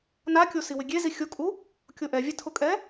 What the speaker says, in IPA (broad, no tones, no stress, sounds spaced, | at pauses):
n a kʲ o s i w ɪ ɡʲ e z i xʲ o kʼ u | kʲ o ʔ ɛ vʲ ɛ tʰ ʊ kʼ ɛ